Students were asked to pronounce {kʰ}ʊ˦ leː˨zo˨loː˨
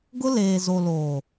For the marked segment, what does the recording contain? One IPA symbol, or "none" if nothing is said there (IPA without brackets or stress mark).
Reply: ɡ